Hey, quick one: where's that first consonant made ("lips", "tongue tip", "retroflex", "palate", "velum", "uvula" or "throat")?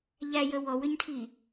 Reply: palate